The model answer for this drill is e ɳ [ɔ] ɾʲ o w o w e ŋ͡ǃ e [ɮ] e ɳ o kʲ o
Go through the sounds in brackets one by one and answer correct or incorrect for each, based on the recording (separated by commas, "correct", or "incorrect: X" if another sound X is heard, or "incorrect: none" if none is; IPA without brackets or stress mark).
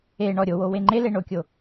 correct, incorrect: l